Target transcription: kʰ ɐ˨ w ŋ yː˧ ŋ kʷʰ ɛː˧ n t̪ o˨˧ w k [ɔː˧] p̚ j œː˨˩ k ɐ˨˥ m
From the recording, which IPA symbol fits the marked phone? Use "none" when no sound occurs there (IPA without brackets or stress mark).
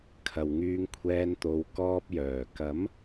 ɔː˧